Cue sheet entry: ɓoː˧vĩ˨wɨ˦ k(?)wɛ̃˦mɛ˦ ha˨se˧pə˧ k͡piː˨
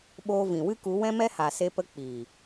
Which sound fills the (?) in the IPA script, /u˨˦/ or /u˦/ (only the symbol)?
u˨˦